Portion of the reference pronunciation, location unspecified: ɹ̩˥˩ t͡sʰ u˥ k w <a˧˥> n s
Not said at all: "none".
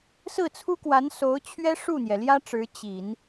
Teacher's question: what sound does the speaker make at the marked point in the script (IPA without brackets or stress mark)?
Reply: a˧˥